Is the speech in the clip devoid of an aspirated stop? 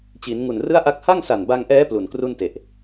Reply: yes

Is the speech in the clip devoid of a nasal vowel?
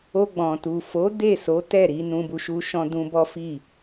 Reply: no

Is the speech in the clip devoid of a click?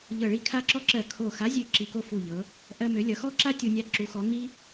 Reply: no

